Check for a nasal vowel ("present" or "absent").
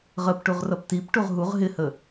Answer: absent